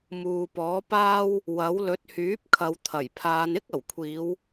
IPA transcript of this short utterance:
m uː˨ p ɔː˨˥ p aː˥ w | w ɐ˨˥ w l ɵ˨˥ t̚ h yː˨˥ p̚ kʰ ɐ˨˧ w t̪ʰ ɐ˨˩ j pʰ aː˨˧ n ɪ˥ k̚ ɐ˨˩ w kʷʰ iː˨˧ w

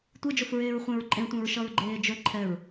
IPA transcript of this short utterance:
tʷ e d͡ʒ o f ɹ eː ɹ χʷ ẽ ɹ ǃʼ ẽ tʷ ẽ ɹ ʃ ʌ ɹ ɡ͡ǃ eː d͡ʒ ɵ ǃʰ ɛ ɹ

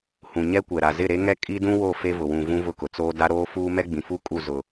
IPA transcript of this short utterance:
h ũ˨ ɲ ɛ˦ kʷ ɛ˨ ɾ a˨ z ɪ˦˨ ɾ e˦ ŋ ɛ˦ kʼ i˦ d ũ˦ w o˦˨ f e˦ v ʊ˨ w ũ˨ v ũ˦ v ʊ˦˨ k ʊ˨ t͡s oː˦ d a˦ ɾ oː˦ f uː˦ m ɛ˦ ɡ͡b ĩ˨ f u˦ kʼ u˦˨ z ʊ˨

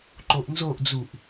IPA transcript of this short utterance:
ǃ o ʔ n z o ʔ d͡z u ʔ

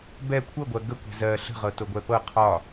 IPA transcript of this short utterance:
b ɛ kʷʰ ɤ ɡʷ ɜ ɡ ə kʷ ɛ̤ z ɜ ɬ ə̤ ʁ ɤ t o ɡʷ ɛ p ɤ qʰ ɒ

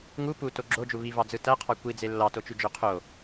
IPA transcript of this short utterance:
ŋ u p u t o ɡ͡ǁ o d͡ʒ u β i v ɑ d͡z ɯ t æ qʰ ɑ kʷ i d͡z e lː ɑ t o t͡ʃ y d͡ʒ ø qʰ o

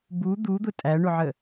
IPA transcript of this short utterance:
b u d̪ u d̪ ʊ tʼ æ ɳ ʊ ʕ ə

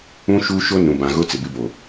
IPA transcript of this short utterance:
ũ˦ ʃ u˦ ʃ o˦ n ũ˨ b ã˨ ɣ ʊ˦ t͡s ɪ˨ b ɪ˦ b o˨

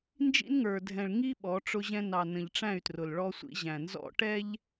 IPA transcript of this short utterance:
n d͡ʒ ḭ˦ n ŋ ə˞˨ dʱ ɛ̃˨ ɭ ŋ i˦ ɓ ɔ˨˦ ʈ͡ʂ ʊ˦ ʑ ɛ̃˦ n ɑ˨ n ə̃˨ ʎ ʈ͡ʂ æ̃˦˨ y̯ t r ʊ˨ l ɭ ɔ˦ sʷ ḭ˦ ʑ æ̃˨ n z ɔ̰˦ ʈ ɛ˦ ʎ

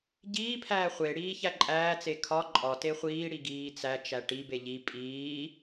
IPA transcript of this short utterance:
ɟ iː pʰ æː χʷ e ɽ iː ç æ ǃʼ æː t͡s e kʰ ɒ ǃʼ ɒ t e χʷ iː ɽ i ɡ iː t͡s æ t͡ʃ æ ʈ i b e ʎ i pʼ iː

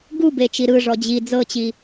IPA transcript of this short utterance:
ɡ u b e t͡ʃ i ɾ ɯ ʐ ɔ d͡ʑ i d͡z ɤ t͡ɕ i

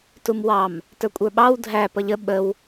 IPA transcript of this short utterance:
t u m w ɑ m | t ə˞ kʷʼ ə˞ ɓ ɑ w dʱ æ p ʌ ʎ ə ɓ ə w

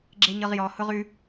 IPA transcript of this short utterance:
ɡ͡ǁ e ɲ ɤ ʁ j ɔ h ʊ ʁ ʉ

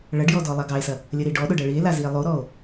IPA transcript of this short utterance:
ɭ ɐ ɖ j ɔ d ɔ lˠ a ɡ ɑ e̯ s ɐ | lʲ ə ɾ i ɖ ɔ ɗ ʊ ɖ ɐ ɭ i e̯ l a z i e̯ lˠ o ɾ ɔ o̯

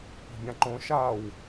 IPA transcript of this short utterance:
p o̤ bʲ ã ǃ õ ʃ a w

